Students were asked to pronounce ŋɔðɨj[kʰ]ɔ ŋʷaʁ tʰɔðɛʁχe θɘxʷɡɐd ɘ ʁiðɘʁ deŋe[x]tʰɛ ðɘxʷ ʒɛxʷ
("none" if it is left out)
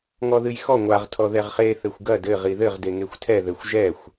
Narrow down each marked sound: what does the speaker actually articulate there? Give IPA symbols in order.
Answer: x, xʷ

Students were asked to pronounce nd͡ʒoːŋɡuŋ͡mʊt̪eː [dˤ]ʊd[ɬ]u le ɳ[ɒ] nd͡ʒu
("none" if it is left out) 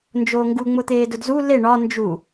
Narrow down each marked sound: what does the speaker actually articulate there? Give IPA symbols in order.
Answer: d, z, ɒ

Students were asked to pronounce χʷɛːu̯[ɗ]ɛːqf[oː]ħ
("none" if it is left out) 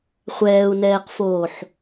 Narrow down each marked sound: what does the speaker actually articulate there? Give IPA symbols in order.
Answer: n, oː

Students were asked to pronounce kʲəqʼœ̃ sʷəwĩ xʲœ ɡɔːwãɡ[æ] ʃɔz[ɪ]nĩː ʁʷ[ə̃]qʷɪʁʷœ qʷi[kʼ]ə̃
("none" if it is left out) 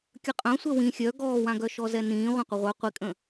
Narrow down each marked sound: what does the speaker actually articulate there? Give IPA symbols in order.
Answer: œ, ɛ, ã, kʼ

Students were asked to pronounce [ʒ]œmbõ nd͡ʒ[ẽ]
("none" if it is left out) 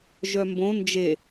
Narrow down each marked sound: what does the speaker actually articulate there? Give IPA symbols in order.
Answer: ʒ, e

